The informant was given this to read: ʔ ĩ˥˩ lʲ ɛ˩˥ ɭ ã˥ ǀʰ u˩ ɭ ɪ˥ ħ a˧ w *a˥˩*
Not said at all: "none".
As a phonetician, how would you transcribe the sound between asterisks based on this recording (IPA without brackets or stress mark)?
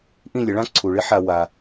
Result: a˩